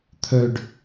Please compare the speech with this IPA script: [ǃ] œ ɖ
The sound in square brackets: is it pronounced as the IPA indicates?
no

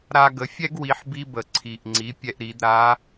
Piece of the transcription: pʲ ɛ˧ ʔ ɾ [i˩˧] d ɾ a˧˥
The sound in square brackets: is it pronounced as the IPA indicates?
yes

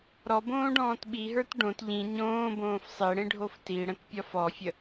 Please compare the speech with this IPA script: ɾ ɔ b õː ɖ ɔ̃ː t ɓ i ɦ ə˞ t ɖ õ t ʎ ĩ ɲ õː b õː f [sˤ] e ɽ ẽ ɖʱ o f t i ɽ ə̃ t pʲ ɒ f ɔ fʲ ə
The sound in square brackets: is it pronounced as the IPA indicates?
yes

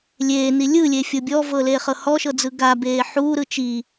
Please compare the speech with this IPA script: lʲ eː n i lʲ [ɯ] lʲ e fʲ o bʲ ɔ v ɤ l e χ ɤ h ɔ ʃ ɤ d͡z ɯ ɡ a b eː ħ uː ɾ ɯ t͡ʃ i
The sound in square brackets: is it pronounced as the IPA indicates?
yes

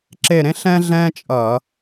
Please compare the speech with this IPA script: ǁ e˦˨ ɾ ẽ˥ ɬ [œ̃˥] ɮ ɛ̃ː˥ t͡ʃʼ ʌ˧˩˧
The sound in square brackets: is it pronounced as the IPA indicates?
no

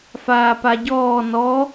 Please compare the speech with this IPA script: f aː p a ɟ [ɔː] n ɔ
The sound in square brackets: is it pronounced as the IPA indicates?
yes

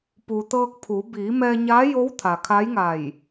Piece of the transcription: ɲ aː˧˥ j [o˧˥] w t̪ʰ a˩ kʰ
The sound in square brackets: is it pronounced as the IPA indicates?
yes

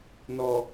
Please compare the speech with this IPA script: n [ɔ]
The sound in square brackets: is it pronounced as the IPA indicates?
yes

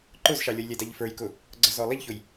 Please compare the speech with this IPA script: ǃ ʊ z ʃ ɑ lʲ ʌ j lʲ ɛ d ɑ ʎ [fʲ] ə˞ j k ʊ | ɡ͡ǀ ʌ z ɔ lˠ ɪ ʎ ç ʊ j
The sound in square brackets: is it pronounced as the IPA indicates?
no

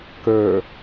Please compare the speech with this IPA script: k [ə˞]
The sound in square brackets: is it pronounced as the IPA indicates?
yes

